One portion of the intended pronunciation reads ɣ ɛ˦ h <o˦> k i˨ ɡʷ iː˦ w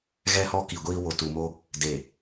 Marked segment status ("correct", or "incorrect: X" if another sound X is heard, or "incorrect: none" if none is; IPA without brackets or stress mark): incorrect: ɔ˦